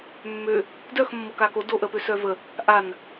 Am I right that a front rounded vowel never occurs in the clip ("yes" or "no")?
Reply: no